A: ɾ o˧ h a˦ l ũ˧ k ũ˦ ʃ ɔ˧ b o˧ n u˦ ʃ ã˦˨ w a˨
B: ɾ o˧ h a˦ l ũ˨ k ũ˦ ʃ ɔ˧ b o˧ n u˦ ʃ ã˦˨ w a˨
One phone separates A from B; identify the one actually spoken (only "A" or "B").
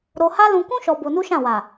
A